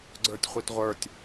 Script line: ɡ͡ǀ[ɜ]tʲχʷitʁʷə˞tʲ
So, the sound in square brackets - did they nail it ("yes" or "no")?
no